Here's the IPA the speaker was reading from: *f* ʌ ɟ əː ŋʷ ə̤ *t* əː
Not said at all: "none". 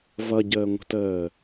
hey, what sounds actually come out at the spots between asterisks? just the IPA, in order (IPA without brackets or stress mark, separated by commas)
v, t